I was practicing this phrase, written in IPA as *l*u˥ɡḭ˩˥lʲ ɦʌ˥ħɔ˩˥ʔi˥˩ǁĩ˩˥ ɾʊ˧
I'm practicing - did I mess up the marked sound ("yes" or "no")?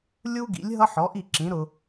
yes